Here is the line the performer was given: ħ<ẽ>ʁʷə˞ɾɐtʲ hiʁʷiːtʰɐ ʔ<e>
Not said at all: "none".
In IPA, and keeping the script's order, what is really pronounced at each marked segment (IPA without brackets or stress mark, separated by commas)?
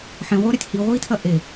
ẽ, e